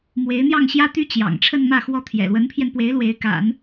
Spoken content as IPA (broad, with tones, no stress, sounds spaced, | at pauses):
m w e˧˥ ɪ̯ n̪ j ɑ˥˩ ŋ ɕ j ä˥ t̪ y˥ t͡ɕ j ɑ̰˨˩ ŋ ʈ͡ʂʰ ə˥˧ n m ä˥˧ x w ɔ˥˩ t̪ʰ j ɛ̰˨˩ l w ə˧˥ n pʰ j ɛ˧ n p w e˧˥ ɪ̯ l w e˧˥ ɪ̯ k a̰˨˩˦ n